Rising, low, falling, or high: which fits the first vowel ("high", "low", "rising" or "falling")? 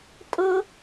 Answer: high